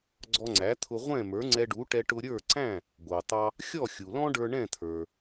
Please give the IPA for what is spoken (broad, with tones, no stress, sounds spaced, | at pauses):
ɡ͡ǀ ɔ˧ ŋ͡ǀ æ˩˥ t̪ʰ ʊ˧ ʁʷ ɛ̃˥˩ m ə˞˩˥ ŋ͡ǀ ɛ˧ ɖ u˩˥ ʈ ɛ˧ ʈ ʊ˧ ɾʲ ə˞˥˩ ǀ æ̃˥˩ | ɡʷ ɑ˩ t̪ ɑ˧ | xʲ ɔ˥˩ xʲ u˩ l ɔ̃˥ ɖ ə˞˧ ɳ ɛ̃˥˩ t̪ʰ ə˞˩